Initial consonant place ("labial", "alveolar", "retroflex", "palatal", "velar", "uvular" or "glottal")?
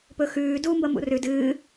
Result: labial